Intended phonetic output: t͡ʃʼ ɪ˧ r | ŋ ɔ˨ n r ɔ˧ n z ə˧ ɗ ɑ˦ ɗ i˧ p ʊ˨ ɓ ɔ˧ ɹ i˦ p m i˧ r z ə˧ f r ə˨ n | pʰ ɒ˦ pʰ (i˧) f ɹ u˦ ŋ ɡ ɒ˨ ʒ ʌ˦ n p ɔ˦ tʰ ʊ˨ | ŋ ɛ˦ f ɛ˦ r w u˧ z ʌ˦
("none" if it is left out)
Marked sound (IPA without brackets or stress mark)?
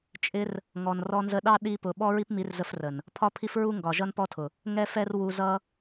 i˦